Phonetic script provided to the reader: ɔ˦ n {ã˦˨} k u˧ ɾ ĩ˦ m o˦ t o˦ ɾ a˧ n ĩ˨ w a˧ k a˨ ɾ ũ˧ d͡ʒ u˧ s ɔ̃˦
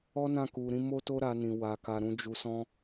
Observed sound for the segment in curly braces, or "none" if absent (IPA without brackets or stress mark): ã˦˨